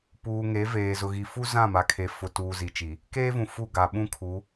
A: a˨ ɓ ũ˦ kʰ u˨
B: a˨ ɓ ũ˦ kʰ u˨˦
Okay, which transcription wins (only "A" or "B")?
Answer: B